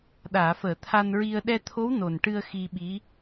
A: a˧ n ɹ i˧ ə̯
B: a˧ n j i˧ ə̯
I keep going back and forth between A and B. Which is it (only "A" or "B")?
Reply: A